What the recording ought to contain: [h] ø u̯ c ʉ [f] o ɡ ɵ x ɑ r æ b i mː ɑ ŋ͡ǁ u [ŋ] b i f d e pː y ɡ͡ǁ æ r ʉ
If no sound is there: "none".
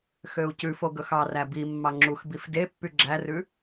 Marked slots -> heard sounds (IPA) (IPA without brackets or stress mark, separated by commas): x, f, x